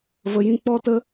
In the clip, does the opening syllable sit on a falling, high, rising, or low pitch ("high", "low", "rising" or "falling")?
low